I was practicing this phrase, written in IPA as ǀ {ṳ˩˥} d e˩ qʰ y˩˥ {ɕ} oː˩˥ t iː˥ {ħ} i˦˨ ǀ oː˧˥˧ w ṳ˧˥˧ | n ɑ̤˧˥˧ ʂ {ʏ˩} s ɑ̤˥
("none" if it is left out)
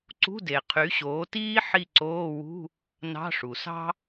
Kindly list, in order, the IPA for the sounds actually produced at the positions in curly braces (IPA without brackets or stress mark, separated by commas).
ṳ˧˥˧, ɕ, ħ, u˩